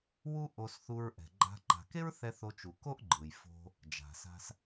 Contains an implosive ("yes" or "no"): no